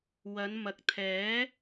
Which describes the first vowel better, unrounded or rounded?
unrounded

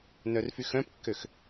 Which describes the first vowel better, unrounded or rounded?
rounded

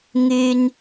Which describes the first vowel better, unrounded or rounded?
rounded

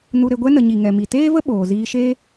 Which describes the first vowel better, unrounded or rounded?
rounded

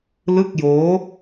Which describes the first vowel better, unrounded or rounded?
unrounded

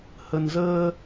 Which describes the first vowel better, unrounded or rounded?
unrounded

